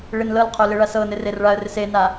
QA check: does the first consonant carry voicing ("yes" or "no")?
yes